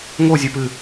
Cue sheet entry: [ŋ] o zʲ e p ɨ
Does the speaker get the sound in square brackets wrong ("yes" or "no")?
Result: no